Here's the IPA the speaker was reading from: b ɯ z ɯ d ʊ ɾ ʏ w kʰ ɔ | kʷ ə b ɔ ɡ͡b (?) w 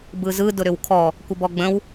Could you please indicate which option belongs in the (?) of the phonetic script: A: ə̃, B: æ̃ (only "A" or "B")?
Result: A